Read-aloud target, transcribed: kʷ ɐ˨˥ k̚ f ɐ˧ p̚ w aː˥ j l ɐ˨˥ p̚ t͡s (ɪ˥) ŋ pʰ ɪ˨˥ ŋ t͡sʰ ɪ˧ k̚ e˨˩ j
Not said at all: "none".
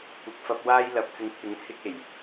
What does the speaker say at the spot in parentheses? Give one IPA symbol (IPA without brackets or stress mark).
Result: ɪ˨˧